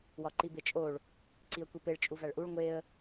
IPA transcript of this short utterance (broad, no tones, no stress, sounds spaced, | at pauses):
w ɒ ǃ i b e t͡ʃʼ o ɭ | ǀ i ə̯ kʷ i p e ɭ t͡ʃʼ u v æ ɭ ʔ u ɭ ŋʷ e ə̯